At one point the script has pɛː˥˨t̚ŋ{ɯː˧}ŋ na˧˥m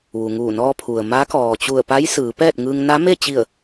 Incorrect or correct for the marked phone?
correct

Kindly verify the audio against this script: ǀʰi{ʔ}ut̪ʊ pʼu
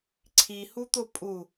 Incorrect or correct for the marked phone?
incorrect: h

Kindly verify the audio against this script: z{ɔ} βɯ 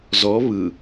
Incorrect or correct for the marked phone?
correct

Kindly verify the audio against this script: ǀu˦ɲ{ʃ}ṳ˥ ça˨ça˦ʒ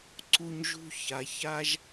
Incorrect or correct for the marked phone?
incorrect: ʒ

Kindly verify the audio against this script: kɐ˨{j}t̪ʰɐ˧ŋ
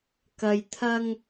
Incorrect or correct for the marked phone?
correct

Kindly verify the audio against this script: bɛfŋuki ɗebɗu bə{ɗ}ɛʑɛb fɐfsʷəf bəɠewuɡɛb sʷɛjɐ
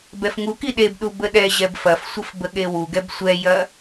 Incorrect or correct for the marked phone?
correct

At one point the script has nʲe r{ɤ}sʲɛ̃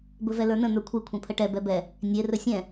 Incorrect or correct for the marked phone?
incorrect: ɵ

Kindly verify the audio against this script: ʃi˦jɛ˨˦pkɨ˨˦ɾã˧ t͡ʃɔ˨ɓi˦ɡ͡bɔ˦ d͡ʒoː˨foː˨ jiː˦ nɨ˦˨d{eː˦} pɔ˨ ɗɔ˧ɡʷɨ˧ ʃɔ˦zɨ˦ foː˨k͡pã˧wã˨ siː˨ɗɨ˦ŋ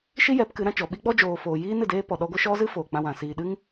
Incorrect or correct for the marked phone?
correct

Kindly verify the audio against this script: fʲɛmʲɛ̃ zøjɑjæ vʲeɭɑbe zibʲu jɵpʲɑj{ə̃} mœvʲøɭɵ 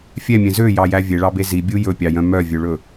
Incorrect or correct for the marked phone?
incorrect: œ̃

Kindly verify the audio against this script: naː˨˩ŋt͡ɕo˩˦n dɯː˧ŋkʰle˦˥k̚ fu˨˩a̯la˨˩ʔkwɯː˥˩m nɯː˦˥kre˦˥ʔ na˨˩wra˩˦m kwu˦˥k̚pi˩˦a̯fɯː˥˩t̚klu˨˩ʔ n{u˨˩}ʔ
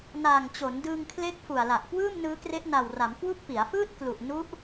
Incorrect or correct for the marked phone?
incorrect: u˦˥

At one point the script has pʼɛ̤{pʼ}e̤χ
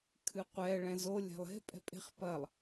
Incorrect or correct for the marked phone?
correct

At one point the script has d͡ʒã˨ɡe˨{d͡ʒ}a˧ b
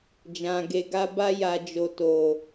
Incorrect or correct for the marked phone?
incorrect: ɡ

